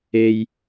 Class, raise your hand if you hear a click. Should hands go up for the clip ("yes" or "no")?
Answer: no